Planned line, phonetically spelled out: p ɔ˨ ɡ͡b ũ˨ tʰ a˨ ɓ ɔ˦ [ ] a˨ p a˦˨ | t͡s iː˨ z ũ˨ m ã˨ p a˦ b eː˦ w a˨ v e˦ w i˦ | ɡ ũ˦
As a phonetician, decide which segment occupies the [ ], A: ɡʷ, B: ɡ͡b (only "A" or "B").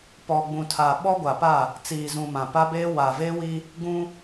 A